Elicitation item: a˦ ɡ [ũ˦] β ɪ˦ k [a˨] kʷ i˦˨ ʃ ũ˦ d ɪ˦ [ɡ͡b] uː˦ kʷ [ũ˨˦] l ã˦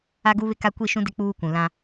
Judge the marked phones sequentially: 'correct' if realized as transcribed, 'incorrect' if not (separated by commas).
incorrect, incorrect, incorrect, incorrect